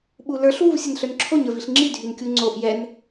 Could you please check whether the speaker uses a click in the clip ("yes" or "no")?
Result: yes